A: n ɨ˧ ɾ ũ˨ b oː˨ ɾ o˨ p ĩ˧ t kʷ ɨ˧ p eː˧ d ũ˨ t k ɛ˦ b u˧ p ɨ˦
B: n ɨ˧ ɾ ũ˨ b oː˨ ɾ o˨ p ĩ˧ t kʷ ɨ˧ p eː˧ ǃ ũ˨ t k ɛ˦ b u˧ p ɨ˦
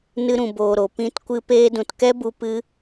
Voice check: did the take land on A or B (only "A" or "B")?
A